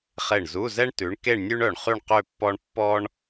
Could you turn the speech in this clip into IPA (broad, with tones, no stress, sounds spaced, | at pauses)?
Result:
χ e˧˩ ɳ z u˧˥˧ z ɛ˥ ɳ t ʉ˨˦ ɳ k e˥˧ ɳ nʲ ʉ˥ ɳ œ˧˩ ɳ χ y˥˧ ɳ q ø˥˧ pː ɔ˥ ɳ pː ɔ˥ ɳ